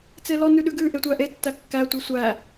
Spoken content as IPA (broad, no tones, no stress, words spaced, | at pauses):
t͡selɔ nʉɗʉɡʉ ʔetʷæʔe tːækːæ tʷesʷæ